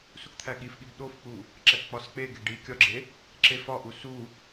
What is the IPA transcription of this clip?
s u k t̪ʰ æ ɠ i f ɠ i b ɗ o f k͡p u | ǁ æ k k͡p ɒ s k͡p e ɡ e ɖ i kʲ ɒ ɡ͡ǁ e | ǁ e f ɒ ʔ u s u

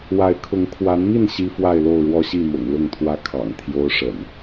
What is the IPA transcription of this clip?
w a˨˦ ɪ̯ kʰ ʊ˨˦ ŋ kʰ w a˨˦ n m i˥˨ n ɕ i˦ f w a˥˨ ɪ̯ l o˥˨ ʊ̯ ɻ w ɔ˦ ɕ i˥˨ m ʊ̰˨˩ ŋ l ʊ˥˨ ŋ t̪ʰ w ä˦ kʰ ɑ̰˨˩ ŋ t̪ʰ j o˦ ʊ̯ ʂ ə̰˨˩ n

